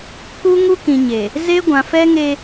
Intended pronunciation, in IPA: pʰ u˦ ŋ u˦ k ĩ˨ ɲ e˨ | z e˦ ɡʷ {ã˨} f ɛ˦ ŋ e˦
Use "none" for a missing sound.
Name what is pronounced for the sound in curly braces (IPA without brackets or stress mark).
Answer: ã˨